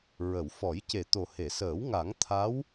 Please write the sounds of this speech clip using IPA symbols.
ɹə˨˩˨wfɔ˨˩˦j ce˨˩t̪o˨˩he˨˩˨səː˨˩˦w ŋa˨˩˦ŋ t̪ʰa˧˥w

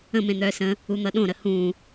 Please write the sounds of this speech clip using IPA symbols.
ə̃mẽ n̪œːsə̃ | un̪ʌɗõɾə hũ

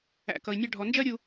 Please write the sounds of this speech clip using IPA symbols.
æ̰˩ kʌ˩i̯nʲɑ˧ɖʱɔ˩ nd͡ʒɜ˥ɾʲu˧

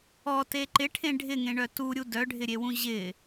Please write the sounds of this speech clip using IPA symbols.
ɔte ǃɪʈʰẽ ɖʱɪŋẽɳœ tuɾʲu dœɖʱɪɾʲewũ ʑɪ

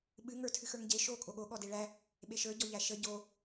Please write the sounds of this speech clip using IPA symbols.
ɓɨ ŋə˞tʰɨxə˞ŋɟe ʃo kʼoɠo ɠɔdeɭæ | ɓeʃə˞ ɟɔʎæʃə ɟo

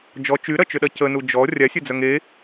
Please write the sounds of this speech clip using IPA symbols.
d͡ʒɔ t͡ʃyɾɐt͡ʃʏɗɐ cənu d͡ʒɔ rʲasʲœd͡zœŋ e

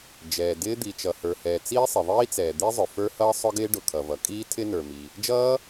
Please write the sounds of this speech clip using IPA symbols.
d͡ʒɛː˩dɪː˦˥ d̪i˩t͡ʃʌ˩hə˞˩hɛː˩ t͡siː˦˥sˤɪ˩ðˤiː˦˥t͡sɛː˩ d̪i˦˥zˤʊ˩ fə˞˦˥hʌː˦˥ sˤʊ˦˥ɡɪː˦˥ɖʊ˩ kʰʌ˩vʌ˩kʼiː˦˥ tʰɪ˦˥nə˞˩mi˩ | d͡ʒʌː˦˥

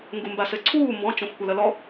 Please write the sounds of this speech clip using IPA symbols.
ŋɡumbasɘǀʰuː mbɔ̃ t͡ʃõxʷkʷɐlɐlɔ

